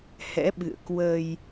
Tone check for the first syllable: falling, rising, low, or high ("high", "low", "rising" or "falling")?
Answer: rising